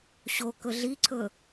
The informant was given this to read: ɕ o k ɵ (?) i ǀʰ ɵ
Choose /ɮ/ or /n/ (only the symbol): ɮ